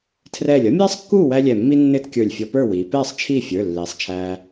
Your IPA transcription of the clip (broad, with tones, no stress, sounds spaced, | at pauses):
tʰ r ɛː˧˩ lʲ ʌ˥ mʲ ɛː˥ sˤ kː uː˥˨ w æ˥ lʲ ɛ˧˩ mː i˥ nː ɪː˥ t kʲ ə˞˧˩ lʲ fʲ ɔ˧ p ə˞˥˨ w iː˩˧ p ɛː˥˨ sˤ t͡ʃʰ iː˥˨ fʲ ə˞˩˧˩ lː iː˩˧ sˤ t͡ʃʰ æː˧